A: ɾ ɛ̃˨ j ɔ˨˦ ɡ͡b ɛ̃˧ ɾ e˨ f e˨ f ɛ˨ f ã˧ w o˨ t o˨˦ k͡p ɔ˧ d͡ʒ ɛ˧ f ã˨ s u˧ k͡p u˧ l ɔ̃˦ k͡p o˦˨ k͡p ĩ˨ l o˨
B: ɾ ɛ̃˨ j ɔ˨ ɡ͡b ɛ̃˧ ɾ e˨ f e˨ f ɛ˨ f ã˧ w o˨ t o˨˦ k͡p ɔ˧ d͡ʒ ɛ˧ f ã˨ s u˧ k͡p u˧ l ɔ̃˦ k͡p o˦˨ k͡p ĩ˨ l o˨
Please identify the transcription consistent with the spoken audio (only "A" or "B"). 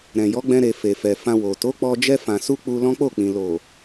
A